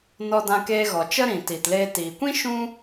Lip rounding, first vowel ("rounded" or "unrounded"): rounded